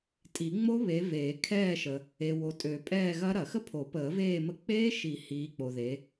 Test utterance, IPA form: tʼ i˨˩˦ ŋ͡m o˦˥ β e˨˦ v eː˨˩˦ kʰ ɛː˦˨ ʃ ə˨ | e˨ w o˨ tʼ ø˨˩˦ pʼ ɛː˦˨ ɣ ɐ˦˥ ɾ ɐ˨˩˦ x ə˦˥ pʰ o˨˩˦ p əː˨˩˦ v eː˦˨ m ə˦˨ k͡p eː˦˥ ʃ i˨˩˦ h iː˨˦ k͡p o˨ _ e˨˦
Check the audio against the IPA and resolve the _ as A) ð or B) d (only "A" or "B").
A